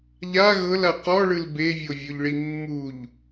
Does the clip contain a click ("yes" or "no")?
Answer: no